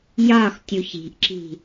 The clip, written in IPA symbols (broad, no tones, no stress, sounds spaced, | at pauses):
j ɒ x tʲ u ç i̤ ʔ ǁ i̤